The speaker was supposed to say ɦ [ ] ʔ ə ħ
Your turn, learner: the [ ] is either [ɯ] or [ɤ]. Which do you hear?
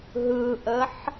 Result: ɯ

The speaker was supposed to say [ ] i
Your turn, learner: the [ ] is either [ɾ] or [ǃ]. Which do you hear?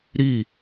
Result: ɾ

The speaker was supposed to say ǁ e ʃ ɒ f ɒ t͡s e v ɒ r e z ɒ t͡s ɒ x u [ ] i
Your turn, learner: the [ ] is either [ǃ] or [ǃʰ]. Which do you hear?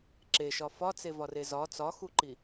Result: ǃ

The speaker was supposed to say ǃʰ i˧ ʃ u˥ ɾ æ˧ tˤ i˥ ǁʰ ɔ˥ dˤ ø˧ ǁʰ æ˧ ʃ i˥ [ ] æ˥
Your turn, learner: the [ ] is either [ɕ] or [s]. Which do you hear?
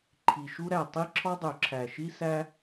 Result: s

